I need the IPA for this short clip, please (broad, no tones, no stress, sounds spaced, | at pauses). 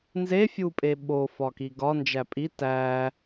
n z e fʲ u pʼ e ɓ o f ɒ k i ɡ ɒ n d͡ʒ æ pʼ i t æ